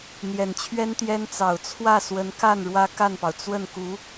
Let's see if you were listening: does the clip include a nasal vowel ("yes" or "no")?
no